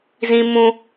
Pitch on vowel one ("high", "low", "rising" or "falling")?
high